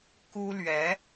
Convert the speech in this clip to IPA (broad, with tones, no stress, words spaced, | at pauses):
ku˥lɥɛ˧˥